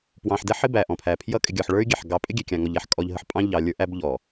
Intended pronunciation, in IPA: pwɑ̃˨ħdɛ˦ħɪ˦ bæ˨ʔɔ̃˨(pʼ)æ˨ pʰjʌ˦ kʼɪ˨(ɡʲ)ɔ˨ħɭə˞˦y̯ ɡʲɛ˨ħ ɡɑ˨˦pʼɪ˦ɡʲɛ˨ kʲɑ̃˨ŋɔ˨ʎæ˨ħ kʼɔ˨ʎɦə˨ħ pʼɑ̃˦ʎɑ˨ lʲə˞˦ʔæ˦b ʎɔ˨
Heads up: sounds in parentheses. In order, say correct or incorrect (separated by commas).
incorrect, correct